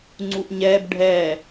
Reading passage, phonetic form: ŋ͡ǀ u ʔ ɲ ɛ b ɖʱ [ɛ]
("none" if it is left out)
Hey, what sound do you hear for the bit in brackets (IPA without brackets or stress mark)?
ɛ